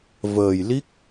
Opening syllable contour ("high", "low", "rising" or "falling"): low